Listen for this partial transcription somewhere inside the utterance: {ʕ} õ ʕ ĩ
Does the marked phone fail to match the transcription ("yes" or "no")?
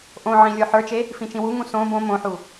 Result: yes